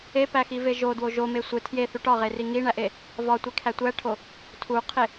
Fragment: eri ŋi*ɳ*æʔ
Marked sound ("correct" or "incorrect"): correct